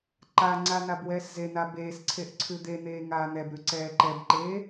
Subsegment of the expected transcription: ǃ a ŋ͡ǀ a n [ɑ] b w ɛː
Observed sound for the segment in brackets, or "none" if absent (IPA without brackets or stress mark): a